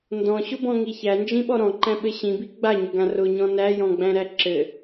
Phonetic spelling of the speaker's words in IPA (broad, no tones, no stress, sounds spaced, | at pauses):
n d ɔ̃ ɕ ʊ b ɔ̃ ŋ i ç æ n d͡ʒ ĩ ɓ ɔ ɾ ɔ̃ ǃ æ̃ ɓ ɘ ɕ ĩ b i ɡ͡b a ɲ ʊ ɡ ã r ʊ ɲ ɔ̃ n æ j ɔ̃ ɡ͡b æ̃ ɾ æ ǁ ɘ